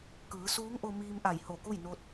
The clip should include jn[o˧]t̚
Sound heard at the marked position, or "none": o˧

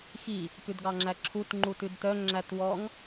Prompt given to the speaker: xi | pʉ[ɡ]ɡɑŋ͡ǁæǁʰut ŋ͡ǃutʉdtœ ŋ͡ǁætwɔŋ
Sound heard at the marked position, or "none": d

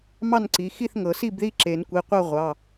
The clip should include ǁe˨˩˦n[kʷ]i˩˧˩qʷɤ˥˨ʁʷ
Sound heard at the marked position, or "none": kʷ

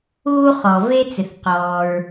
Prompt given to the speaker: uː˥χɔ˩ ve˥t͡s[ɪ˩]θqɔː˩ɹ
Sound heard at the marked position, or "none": ɪ˩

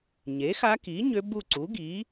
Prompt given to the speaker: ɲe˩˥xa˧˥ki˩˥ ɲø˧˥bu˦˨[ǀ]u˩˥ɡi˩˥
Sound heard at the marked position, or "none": ǀ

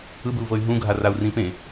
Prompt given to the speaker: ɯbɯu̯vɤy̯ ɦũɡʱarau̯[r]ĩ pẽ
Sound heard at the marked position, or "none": r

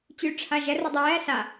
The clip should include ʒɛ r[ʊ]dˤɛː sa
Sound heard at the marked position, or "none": ʊ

